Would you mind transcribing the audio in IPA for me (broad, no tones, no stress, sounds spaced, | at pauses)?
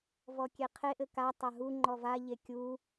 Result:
v ɔ kʲ e qʰ e ʔ ɘ k a tˤ a ɦ u ŋ͡ǃ ɔ v a ʎ e kʲ u